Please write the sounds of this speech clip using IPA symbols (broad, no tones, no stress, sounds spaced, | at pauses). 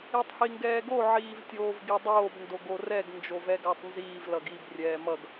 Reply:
i tˤ h i ŋ ɡ ɛː ɡ o ʕ iː v tʲ oː v ɡ i dˤ oː b n d o ɡ o r ɛ ɡ n d͡ʒ o v ɛ ɡ a tˤ n z iː v l ʌ ɡ i b rʲ ɛː m ʌ ɡ